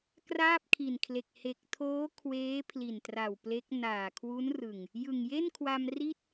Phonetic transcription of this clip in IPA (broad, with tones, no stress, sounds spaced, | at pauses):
k r aː˥˩ p̚ kʰ i˨˩ n kʰ l e˨˩ k̚ h e˨˩ k̚ tʰ oː˦˥ kʰ w eː˦˥ pʰ l i˨˩ n t r a˨˩ w p l e˦˥ k̚ n aː˨˩ kʰ w u˦˥ n r ɯ˨˩ ŋ | j ɯ˨˩ ŋ j e˥˩ n kʰ w a˧ m r i˥˩ t̚